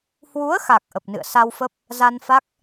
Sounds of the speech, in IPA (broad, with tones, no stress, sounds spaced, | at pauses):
h w u˨˦ ə̯ x a˨˩ k̚ ʔ ə˨˩ p̚ n ɨ̰˧˨ ə̯ s a˧ w f ə˦˥ p̚ | z a˧ n f a˦˥ k̚